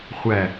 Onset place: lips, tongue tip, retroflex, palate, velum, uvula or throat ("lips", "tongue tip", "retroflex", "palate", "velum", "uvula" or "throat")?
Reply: uvula